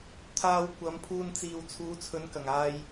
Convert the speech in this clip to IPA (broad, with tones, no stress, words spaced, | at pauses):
t̪ʰaː˧wkʷɐ˨˧mpʰuː˧n t͡siː˨wt͡sʰuː˨˧ t͡sʰɵ˨˧nkɐ˨˩ŋaː˧j